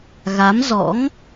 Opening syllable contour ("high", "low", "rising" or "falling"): rising